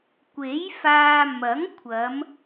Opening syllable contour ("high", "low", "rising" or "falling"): rising